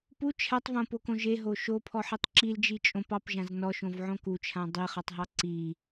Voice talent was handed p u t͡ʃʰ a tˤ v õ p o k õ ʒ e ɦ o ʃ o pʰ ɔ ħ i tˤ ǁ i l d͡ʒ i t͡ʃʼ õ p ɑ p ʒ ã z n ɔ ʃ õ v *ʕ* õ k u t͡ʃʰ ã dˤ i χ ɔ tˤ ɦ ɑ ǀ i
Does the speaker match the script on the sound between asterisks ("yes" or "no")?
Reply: yes